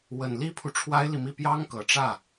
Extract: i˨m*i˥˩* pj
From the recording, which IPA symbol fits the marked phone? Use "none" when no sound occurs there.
i˥˩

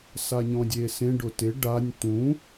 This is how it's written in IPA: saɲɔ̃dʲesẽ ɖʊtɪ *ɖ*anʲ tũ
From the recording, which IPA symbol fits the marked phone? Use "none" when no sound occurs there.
ɖ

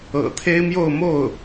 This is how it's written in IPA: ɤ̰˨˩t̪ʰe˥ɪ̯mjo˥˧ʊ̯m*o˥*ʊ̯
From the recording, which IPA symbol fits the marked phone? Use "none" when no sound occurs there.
o˥˩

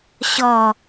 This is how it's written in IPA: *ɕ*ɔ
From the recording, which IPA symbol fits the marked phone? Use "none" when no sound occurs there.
ɕ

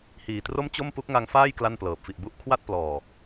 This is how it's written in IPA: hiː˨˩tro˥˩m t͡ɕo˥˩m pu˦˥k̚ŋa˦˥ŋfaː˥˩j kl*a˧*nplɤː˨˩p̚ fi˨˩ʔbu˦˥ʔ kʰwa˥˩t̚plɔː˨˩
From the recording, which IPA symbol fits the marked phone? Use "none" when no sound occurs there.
a˥˩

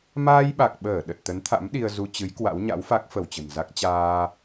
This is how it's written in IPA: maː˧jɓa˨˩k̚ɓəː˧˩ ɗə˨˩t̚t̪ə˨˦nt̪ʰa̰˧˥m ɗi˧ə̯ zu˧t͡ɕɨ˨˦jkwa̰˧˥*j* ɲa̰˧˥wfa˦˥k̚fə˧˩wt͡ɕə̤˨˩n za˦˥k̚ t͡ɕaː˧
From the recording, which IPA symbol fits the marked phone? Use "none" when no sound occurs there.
w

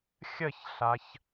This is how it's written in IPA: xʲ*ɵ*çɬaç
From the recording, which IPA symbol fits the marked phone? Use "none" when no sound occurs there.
ə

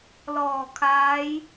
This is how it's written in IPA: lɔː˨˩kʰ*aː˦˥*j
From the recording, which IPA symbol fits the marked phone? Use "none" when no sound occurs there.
aː˦˥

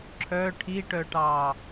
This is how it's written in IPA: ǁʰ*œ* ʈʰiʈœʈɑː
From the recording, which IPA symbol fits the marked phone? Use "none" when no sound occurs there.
œ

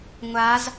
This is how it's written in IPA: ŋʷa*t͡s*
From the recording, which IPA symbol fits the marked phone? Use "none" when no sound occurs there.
z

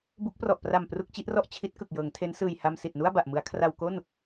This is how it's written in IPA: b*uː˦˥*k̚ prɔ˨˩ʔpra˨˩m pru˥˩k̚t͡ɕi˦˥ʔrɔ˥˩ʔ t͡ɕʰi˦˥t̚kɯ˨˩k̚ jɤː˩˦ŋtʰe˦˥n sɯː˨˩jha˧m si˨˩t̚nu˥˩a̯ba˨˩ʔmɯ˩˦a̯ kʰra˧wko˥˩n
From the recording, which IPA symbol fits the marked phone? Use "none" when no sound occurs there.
u˦˥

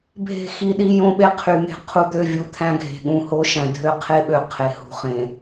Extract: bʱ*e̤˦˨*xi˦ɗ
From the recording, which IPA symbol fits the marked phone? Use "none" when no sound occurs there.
e̤˦˨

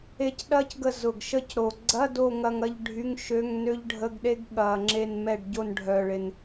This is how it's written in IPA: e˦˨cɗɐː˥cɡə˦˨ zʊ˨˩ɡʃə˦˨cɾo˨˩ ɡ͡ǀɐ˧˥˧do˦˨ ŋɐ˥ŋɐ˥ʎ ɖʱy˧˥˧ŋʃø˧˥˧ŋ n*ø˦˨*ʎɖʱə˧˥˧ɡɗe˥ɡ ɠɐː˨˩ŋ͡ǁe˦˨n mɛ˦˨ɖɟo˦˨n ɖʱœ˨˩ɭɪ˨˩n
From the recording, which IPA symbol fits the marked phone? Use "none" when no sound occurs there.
ø˥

